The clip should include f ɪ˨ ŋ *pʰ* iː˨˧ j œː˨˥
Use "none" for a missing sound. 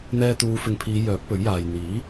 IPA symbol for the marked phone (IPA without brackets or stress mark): pʰ